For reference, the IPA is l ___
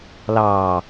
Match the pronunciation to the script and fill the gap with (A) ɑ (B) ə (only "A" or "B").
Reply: A